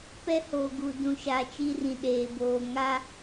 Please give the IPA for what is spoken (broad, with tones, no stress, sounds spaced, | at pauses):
p ɛ˦ h oː˨ ɡ u˨ d ũ˨ ʃ a˨ t͡ʃ i˦ r ĩ˨ ɗ eː˨ b oː˨ ŋ a˦